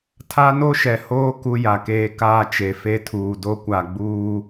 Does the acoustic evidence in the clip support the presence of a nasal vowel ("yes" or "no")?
no